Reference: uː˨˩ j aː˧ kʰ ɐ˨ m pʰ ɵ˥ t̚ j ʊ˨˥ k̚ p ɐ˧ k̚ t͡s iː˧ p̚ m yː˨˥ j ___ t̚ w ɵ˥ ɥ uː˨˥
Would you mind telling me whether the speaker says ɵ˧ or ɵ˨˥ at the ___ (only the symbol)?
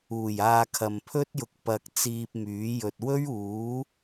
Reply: ɵ˧